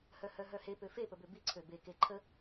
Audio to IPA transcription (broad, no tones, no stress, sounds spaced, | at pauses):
h œ h œ ɦ œ h e p ø f e p ə b ø b i ǀʰ ø b e k e ǃʰ ə